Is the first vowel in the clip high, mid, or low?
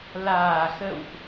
low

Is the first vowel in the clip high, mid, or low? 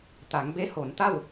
low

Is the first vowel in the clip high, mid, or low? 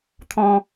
mid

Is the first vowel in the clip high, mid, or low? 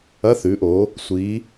low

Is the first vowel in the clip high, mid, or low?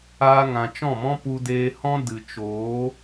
low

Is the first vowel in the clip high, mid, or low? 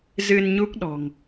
high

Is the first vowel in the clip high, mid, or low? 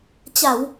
low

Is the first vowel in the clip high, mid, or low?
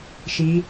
high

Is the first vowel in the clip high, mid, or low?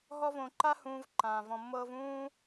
mid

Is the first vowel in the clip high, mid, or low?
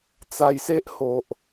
low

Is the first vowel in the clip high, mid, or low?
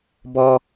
mid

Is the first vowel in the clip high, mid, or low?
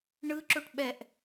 high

